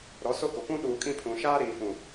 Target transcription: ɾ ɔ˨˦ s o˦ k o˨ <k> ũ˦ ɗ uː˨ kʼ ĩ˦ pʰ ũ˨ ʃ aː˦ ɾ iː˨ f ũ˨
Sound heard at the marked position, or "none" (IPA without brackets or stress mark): k